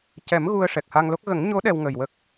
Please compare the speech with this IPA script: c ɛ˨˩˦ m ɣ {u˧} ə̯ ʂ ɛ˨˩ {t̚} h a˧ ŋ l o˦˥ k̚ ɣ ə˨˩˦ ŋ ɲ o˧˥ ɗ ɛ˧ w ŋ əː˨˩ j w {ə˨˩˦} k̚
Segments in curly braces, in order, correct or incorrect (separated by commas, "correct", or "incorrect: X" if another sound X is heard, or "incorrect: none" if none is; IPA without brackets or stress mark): correct, incorrect: k̚, incorrect: ə˦˥